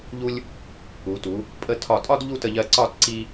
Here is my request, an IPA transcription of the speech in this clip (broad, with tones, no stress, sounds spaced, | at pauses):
ʎ u˧ lʲ | u˩˧ t u˩˧ | pʼ ə˧ tʰ ɒ˧˩ tʼ ɒ˥ d ʎ u˥˧ t ə˧ ʎ ɜ˧ ǀ ɒ˥˧ t ǀ i˧